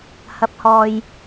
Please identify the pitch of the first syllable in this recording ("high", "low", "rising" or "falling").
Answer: rising